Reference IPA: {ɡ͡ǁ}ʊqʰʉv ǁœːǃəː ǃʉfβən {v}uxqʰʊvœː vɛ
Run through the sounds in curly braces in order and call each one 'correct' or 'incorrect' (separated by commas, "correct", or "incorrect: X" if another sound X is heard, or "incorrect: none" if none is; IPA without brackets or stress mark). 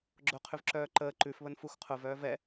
correct, incorrect: f